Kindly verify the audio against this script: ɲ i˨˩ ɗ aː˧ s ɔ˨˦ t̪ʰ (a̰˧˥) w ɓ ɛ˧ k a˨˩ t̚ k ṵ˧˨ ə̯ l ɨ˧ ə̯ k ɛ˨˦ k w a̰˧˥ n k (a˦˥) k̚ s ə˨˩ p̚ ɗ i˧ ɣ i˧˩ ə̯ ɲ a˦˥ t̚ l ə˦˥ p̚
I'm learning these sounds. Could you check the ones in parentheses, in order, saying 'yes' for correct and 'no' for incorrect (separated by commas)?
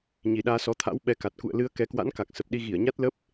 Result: yes, no